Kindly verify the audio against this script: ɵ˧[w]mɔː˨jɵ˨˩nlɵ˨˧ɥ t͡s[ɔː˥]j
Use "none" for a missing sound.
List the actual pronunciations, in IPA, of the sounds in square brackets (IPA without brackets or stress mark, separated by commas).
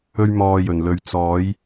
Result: ɥ, ɔː˨˧